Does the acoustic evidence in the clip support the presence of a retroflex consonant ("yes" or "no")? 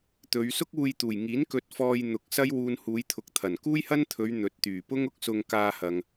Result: no